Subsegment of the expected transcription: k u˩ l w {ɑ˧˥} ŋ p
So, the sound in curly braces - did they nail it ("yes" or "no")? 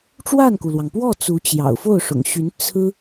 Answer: no